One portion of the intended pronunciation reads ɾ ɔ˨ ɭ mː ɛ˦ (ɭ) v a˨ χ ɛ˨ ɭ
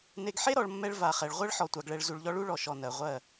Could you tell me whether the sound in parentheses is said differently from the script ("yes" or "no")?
no